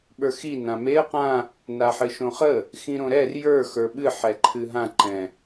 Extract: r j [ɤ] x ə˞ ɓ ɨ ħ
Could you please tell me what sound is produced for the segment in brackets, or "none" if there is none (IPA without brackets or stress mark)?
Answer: ə˞